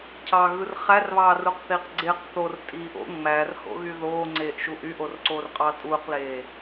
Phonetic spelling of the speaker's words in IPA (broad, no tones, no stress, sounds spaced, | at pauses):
cʰ ɑ ɣ ɯ r χ æ r β ɑː r u q θ iː q ɡ͡ǀ e q θ o r tʼ iː ʔ o̰ ŋ͡m æ r h o̰ ɣ y ð oː ŋ͡ǀ eː ʔ ʃ uː ʔ y ʔ o r ǀ oː r qʼ ɑː tʼ uː q l eː